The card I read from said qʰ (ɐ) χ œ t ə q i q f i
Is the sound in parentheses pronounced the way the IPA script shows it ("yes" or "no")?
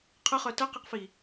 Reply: no